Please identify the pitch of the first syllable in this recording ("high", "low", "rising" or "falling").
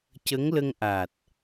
rising